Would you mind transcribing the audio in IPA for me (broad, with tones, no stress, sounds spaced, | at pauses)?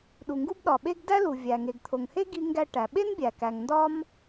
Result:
ɗ u˩ ŋ ɡ u˥ b ɗ ɒ˩ ɓ e˥ ɡ d æ˥ l u˩ vʲ æ˩ ŋ e˩ ɡ t̪ʰ o˩ ŋ h e˥ ɡ i˥ ŋ ɡ æ˥ ʈ æ˩ ɓ e˥ n bʲ æ˩ k æ˩ ŋ n d ɒ˥ m